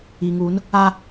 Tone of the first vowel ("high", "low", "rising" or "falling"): low